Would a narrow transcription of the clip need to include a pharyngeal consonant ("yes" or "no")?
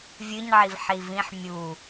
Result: yes